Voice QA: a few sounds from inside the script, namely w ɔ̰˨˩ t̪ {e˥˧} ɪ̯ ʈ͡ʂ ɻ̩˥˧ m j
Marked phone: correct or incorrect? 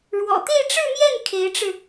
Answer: correct